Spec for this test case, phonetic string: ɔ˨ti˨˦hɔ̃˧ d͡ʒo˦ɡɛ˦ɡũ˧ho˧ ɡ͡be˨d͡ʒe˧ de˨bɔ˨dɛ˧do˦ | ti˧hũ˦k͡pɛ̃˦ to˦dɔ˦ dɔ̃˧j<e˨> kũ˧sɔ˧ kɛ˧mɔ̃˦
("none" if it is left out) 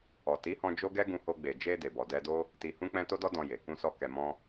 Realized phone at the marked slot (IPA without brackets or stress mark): e˨